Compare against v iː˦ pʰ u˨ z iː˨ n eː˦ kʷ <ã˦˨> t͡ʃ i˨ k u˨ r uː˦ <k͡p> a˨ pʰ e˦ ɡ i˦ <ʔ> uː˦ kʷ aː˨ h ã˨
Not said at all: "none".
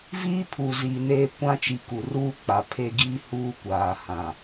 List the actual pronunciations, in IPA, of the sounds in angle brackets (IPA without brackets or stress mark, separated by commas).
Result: ã˦, k͡p, h